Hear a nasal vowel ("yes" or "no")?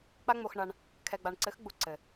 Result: no